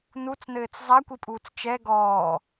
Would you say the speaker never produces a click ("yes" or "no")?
yes